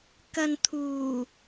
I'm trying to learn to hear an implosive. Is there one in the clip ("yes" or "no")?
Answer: no